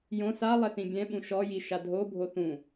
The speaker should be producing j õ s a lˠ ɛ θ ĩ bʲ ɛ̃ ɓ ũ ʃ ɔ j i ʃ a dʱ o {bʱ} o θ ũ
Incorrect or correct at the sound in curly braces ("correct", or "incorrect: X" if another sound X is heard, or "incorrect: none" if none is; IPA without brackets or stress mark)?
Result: correct